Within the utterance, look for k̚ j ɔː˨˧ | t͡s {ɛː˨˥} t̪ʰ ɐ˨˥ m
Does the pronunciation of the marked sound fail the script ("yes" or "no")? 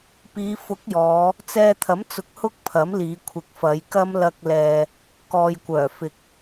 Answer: yes